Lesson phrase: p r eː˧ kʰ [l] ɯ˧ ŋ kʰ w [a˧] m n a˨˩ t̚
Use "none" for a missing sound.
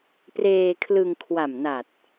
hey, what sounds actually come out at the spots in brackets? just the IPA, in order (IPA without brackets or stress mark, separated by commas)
l, a˨˩